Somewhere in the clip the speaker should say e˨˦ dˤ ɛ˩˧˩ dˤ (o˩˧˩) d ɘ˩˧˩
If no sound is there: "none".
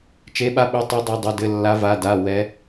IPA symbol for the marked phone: o˩˧˩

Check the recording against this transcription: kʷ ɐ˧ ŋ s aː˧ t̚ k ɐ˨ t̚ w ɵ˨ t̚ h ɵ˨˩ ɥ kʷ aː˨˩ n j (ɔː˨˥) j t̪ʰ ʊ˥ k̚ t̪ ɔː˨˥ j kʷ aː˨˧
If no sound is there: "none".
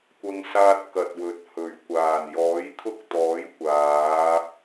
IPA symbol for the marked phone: ɔː˨˥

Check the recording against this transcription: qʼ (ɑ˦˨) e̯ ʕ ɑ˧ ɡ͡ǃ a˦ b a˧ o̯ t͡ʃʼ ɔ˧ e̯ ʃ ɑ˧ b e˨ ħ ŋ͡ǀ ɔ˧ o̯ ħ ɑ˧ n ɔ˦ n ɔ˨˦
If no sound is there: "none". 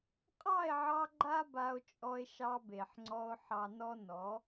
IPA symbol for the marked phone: ɑ˦˨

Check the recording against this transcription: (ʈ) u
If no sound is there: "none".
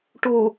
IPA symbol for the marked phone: ʈ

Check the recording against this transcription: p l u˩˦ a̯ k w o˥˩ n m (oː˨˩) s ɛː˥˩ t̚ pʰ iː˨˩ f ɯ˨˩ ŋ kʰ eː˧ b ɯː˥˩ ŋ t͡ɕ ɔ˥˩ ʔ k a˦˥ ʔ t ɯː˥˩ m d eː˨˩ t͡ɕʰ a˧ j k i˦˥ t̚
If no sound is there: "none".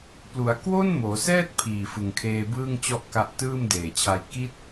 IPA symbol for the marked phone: oː˩˦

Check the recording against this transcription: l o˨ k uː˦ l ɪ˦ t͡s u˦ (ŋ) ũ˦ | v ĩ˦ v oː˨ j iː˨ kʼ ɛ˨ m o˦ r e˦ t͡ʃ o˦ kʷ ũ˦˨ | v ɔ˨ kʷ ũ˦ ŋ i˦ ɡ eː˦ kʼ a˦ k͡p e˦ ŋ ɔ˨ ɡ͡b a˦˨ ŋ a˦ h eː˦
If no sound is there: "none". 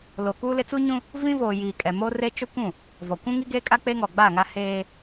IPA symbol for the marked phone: ɲ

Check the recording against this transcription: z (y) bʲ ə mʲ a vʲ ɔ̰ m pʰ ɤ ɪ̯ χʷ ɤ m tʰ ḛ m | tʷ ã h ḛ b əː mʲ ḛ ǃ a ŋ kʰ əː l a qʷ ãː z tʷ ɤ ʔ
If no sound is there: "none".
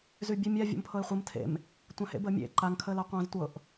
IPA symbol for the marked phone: y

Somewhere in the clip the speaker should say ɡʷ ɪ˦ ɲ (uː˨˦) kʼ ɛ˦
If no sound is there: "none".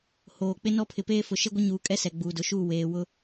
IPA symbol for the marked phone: uː˨˦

